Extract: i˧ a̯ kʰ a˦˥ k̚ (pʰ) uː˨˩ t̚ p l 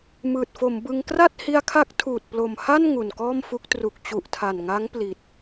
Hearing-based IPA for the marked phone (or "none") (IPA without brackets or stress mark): tʰ